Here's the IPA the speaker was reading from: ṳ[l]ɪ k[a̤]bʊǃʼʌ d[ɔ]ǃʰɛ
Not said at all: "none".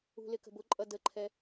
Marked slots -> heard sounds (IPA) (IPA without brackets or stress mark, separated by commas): l, ə̤, ə